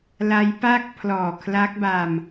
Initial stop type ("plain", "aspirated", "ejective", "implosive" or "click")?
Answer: plain